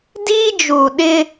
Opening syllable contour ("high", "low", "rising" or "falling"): high